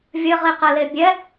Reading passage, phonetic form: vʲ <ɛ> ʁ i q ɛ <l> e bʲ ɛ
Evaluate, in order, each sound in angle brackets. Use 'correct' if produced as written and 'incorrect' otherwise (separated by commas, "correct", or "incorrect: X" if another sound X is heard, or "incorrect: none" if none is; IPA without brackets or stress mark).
incorrect: ɘ, correct